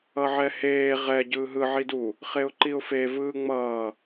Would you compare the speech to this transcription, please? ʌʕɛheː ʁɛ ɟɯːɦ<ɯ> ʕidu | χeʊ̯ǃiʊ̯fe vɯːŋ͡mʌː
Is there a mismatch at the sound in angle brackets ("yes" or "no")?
no